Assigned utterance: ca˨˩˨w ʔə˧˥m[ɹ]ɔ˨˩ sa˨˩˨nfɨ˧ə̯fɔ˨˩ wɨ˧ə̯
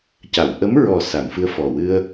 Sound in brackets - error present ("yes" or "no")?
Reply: no